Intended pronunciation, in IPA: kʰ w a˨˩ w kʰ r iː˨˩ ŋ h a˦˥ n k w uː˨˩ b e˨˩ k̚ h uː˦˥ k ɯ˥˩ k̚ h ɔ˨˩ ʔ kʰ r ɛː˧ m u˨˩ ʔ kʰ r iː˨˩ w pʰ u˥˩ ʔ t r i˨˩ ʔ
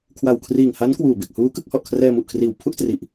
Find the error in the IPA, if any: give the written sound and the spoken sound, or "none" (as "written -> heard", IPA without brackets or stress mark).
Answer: none